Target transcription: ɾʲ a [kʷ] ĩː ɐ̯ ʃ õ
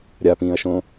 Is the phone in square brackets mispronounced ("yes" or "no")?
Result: yes